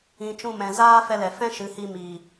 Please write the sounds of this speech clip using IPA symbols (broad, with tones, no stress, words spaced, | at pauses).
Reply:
ĩ˨t͡ʃũ˦˨mɛ̃˨ zaː˦ fɛ˧lɛ˨ fɛ̃˦ʃɨ˨˦hi˧ mi˨